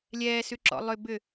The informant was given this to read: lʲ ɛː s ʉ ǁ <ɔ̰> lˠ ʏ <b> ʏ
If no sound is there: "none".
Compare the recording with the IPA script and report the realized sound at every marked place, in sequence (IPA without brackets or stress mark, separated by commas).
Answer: ɔ̰, b